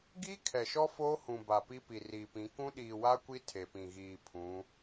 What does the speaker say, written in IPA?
ɡ iː˦ kʰ ɛ˨ ʃ ɔ˦ f oː˦ h ũ˨ b a˨ p i˦ p i˨ r iː˨ p ĩ˨˦ k ũ˦ ɗ iː˨ w a˦ kʷ i˦ tʰ e˨ p ĩ˨ ɣ iː˨ pʰ ũ˨˦

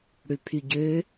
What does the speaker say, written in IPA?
ɽ ʉ pʰ y ɟ ø

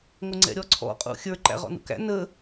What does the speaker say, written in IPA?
ŋʷ ɪ ŋ͡ǀ ɛ̰ ɾʲ ɔ ǀʰ ɔ̰ qʼ ṵ xʲ ə˞ ǃ æ̰ ʁ ɔ̰ n ṵ k æ̰ n ə

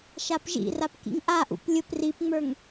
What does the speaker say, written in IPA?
ʃ a p ʒ ḭ r a p k ḭ ŋ ʔ a ʔ ṵ p lʲ ʊ p r i p ŋ͡m ə˞ ŋ

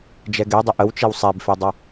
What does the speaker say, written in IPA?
d͡ʒ ɛ ɡ ɛ dˤ ə ʔ ə w t͡ʃ e w sˤ ɛ b f e dˤ ʌ

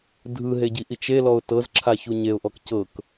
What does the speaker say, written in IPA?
dʱ ɯ ɦ e ɟ i ʔ i t͡ʃ e l ɔ ʊ̯ t ɤ z ǁʰ a ç u ɲ e ʊ̯ ʔ ɔ k c ɤ k

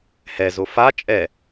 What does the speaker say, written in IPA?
h ɛ z o f a t͡ʃʼ ɛ

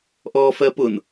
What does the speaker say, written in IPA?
ʔ ɔː f ɜ p ʊ n

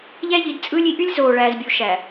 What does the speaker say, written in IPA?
ʎ æ˦ ʎ i˨˦ d t͡sʼ ɯː˦ lʲ i˨˦ ʔ y˦ lʲ z oː˨ ɭ æː˨ z bʲ u˨ ʃ æ˨

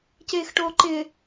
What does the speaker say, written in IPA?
c eː x ʈ oː ǃ ɪ

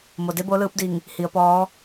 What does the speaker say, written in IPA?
m o˩ d e˧˥ b o˧˥ l ɯː˧˥ p̚ d i˧˩ ŋ | h i˩˧ ə̯ p ɔː˧˥

